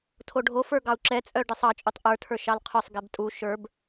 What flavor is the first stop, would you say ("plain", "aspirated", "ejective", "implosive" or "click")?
aspirated